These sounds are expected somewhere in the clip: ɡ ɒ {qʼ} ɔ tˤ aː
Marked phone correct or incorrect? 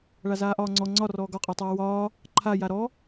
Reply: correct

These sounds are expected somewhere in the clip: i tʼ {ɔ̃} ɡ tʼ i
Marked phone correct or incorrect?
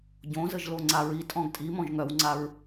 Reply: correct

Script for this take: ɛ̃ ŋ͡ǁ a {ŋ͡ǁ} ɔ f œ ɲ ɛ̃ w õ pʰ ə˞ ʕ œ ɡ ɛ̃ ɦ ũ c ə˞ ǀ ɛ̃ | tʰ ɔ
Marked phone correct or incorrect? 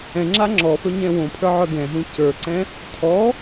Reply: correct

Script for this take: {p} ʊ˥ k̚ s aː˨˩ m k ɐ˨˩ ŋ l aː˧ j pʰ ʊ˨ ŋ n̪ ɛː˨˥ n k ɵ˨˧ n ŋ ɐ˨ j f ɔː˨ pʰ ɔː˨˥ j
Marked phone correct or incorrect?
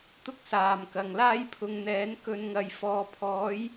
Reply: incorrect: t̪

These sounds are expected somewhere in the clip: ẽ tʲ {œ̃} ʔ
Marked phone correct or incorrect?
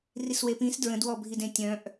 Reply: correct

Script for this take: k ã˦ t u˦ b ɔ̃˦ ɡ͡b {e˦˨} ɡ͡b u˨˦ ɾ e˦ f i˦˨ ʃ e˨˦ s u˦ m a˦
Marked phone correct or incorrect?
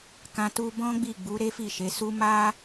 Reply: incorrect: i˦˨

